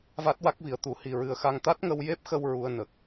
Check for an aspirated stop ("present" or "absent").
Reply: absent